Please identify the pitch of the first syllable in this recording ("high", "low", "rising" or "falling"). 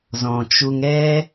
low